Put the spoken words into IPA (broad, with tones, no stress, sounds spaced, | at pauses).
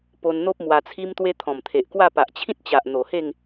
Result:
p o˧ n n̪ o˦ p̚ m w a˧ t͡sʰ i˦ m t̪ w e˦ t̪ʰ ɔ̃˨˩ m t̪ʰ e˨ ʔ k w a˥˧ p a˨ ʔ t͡ɕʰ ĩ˦ t̚ t͡ɕ a˨ ʔ n̪ o˨˩ h e˥˧ ŋ